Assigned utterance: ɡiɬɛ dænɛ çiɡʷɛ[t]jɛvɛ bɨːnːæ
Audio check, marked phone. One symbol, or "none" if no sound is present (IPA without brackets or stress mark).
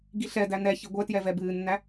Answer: t